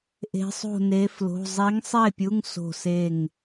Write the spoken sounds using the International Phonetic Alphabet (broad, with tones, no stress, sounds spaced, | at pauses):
ʔ e̤˧˥ sˤ o̤˥˨ n e˧˥ f l o̤˧˥˧ zˤ i˧˥ ŋ sˤ e˥˨ pʲ u˧˥˧ ŋ s o̤˥˨ s e˥˨ ŋ